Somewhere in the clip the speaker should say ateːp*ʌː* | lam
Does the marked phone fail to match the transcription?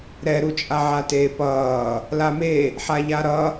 no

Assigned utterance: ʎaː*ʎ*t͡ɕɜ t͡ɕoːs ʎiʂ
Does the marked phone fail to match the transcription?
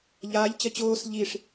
no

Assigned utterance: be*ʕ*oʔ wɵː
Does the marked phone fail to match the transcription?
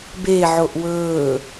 no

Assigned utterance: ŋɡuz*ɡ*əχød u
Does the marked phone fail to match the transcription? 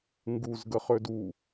no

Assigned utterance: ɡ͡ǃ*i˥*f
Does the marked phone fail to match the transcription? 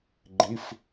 yes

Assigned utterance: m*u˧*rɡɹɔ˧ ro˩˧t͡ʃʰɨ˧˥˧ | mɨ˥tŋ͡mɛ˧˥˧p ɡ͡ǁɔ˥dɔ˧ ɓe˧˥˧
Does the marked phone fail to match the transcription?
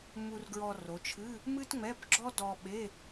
no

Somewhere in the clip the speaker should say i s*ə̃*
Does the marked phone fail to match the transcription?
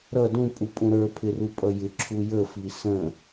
no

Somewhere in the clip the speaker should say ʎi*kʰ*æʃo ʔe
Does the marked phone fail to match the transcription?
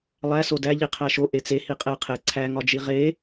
yes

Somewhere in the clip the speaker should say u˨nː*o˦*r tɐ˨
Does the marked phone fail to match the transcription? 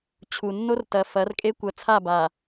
no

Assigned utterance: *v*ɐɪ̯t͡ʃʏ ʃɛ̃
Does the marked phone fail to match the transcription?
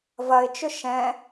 no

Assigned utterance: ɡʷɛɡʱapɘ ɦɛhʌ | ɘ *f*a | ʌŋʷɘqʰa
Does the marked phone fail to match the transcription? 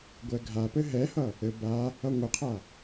yes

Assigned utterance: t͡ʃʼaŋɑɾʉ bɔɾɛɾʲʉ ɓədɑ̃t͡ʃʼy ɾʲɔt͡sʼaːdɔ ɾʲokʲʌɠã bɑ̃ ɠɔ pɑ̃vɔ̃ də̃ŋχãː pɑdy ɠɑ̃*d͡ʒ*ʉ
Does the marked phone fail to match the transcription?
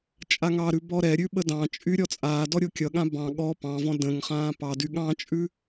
yes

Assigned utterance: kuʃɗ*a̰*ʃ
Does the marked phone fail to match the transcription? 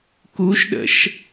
yes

